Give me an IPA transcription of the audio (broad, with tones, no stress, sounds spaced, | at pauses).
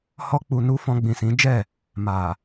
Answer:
h ɔ˧ k͡p u˨ n u˧ f ɔ̃˧ ɡ͡b ĩ˨ s ĩ˨˦ d͡ʒ ɛ˦˨ | m a˨